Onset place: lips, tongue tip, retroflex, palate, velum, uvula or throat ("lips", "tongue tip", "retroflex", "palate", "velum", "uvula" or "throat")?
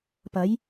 lips